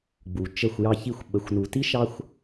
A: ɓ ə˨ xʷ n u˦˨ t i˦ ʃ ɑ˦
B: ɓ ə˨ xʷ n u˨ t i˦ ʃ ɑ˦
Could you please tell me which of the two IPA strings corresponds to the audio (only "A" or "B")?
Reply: B